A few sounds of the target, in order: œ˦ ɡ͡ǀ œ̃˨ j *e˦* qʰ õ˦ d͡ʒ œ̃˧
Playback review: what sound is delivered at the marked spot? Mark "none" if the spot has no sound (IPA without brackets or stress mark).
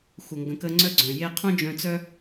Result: e˦